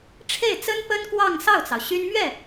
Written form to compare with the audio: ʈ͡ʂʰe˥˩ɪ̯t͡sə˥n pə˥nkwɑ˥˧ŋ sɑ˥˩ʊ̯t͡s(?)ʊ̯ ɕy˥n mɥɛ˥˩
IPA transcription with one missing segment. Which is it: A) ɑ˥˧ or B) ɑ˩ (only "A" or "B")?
B